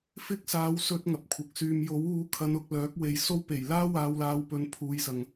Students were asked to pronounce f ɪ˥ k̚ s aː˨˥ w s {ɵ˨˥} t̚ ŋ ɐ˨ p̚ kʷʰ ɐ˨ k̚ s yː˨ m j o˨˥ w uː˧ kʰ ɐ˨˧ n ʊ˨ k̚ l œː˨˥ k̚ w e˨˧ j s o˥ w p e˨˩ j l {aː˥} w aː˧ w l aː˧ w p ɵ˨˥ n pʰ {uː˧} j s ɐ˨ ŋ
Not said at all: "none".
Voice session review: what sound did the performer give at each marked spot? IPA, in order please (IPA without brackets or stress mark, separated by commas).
ɵ˥, aː˥, uː˨˧